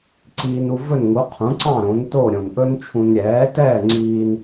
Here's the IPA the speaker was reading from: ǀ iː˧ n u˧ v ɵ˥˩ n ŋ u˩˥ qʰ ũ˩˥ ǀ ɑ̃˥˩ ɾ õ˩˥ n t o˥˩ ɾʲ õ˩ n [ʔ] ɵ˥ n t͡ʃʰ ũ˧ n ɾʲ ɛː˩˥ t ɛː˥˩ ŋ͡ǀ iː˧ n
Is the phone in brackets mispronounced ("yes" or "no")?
no